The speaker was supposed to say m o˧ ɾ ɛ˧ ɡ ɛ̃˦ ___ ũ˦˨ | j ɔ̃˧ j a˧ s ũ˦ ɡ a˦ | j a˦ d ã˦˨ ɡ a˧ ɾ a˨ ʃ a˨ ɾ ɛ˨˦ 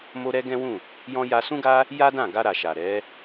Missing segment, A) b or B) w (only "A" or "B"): B